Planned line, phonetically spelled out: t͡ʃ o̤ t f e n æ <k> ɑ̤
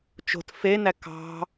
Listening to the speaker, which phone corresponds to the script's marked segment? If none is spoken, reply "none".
k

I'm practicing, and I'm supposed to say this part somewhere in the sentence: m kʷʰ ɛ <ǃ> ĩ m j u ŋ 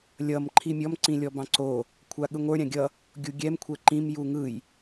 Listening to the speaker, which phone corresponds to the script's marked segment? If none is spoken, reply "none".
ǃ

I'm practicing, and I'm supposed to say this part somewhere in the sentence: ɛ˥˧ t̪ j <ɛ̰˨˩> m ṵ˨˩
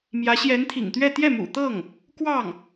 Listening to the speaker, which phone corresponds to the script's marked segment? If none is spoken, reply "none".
ɛ˥˩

